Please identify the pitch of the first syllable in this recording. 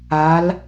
rising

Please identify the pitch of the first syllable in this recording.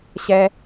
low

